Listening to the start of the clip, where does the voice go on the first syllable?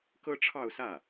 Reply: high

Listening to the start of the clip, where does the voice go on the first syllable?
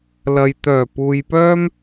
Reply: low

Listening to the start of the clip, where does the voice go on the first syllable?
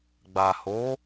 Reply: low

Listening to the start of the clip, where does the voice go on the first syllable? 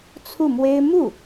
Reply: falling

